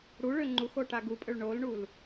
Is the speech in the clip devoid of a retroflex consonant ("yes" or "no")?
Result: no